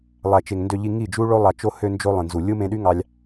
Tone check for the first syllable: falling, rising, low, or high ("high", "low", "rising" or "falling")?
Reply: low